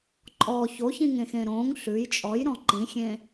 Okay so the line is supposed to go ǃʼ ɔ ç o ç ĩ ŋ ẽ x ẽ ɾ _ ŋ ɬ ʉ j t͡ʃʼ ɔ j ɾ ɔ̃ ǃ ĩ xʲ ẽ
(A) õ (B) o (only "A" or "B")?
A